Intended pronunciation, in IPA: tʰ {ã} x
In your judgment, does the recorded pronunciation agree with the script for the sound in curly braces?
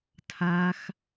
no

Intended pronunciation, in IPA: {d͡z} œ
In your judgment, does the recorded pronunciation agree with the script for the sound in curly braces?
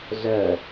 no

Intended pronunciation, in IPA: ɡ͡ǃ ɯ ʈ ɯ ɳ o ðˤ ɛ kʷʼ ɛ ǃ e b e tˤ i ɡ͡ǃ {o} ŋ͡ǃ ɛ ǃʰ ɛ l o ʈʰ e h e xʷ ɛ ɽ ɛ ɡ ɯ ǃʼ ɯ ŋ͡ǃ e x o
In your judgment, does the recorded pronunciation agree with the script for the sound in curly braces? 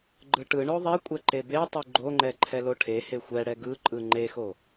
yes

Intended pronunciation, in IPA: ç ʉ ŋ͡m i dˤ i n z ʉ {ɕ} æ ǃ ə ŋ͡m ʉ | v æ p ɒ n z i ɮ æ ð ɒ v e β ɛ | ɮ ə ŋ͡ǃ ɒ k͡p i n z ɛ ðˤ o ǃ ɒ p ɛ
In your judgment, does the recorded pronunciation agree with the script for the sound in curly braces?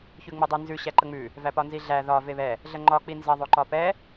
yes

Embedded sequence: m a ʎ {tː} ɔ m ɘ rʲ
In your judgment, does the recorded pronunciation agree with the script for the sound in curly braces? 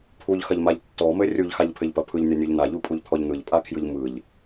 yes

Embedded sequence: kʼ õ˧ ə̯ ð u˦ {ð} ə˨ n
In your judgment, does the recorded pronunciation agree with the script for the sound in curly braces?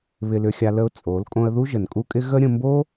no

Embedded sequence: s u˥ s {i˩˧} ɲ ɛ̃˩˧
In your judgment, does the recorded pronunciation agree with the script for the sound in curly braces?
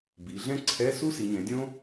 yes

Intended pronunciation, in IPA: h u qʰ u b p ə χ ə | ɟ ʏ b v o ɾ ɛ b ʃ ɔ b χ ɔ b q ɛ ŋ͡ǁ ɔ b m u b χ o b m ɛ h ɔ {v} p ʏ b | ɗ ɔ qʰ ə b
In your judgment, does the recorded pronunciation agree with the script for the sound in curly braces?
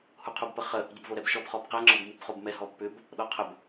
no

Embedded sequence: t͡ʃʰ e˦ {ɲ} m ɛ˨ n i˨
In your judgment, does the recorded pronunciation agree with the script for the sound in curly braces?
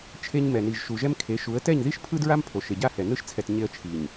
yes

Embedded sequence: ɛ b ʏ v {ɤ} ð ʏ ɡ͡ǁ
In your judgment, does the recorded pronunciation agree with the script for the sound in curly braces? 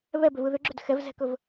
no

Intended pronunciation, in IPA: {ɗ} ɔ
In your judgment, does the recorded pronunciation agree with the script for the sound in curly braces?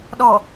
yes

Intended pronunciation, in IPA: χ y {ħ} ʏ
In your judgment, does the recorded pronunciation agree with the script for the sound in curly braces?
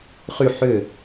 yes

